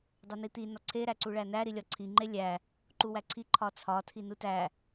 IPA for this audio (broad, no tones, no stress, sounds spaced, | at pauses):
dˤ u n i t̪ i n ɒ ǀʰ e ɾ æ ǀ u ɭ æ n æ ɾ i lʲ ɒ ǀʰ i ŋ͡ǃ e lʲ æ | ǃ u w æ ǀʰ i ǃʰ ɒ t͡sʰ ɒ tʰ i n u t æ